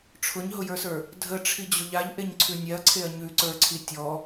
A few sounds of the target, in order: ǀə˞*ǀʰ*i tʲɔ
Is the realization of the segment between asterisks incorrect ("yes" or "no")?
no